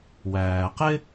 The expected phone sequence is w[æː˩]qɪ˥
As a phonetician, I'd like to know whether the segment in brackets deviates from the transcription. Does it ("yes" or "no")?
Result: no